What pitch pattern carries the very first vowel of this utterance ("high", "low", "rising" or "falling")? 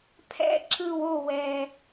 high